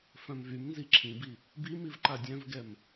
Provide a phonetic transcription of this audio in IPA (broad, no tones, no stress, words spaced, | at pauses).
fœ̃mvymnzi ǁʰĩbi | bimiv ǃadʲœ̃vɡɛm